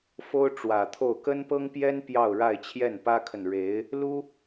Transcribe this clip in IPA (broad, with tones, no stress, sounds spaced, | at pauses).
f o˥ ʊ̯ ʈ͡ʂ w ä˨˩ t̪ʰ o˥˩ ʊ̯ k ə˥ n p ɤ˥ ŋ p j ɛ˥ n p j ɑ˥˧ ʊ̯ ɻ a˥˧ ɪ̯ t͡ɕʰ j ɛ˥˩ n p ä˥ kʰ ə˨ n ɻ e˧˥ ɪ̯ | l u˥